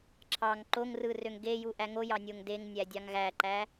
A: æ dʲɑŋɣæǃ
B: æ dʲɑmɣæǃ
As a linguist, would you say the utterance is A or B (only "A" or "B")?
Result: A